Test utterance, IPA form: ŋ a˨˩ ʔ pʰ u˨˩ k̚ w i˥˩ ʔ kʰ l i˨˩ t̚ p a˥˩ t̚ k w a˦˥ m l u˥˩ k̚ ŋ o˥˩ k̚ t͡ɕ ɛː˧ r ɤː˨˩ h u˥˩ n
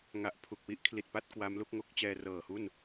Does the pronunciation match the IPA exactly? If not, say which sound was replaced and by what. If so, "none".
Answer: none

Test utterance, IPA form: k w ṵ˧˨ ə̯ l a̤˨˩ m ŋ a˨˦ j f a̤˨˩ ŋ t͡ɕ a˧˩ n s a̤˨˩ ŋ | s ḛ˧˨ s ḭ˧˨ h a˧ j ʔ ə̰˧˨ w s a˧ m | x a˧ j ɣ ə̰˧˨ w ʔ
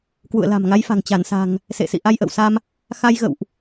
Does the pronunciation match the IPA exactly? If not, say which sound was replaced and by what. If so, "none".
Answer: h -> ʔ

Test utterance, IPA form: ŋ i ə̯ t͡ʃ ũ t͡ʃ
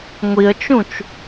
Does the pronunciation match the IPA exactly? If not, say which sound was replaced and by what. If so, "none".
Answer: ŋ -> ŋʷ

